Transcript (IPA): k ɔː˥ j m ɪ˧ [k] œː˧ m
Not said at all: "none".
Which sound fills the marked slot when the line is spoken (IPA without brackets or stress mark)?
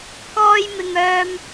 ŋ